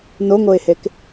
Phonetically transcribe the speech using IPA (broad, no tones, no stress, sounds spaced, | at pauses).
n o ŋ o ɪ̯ h e k